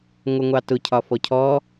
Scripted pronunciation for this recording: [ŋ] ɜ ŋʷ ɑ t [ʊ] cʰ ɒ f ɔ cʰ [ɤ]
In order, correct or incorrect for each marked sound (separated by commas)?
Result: incorrect, correct, incorrect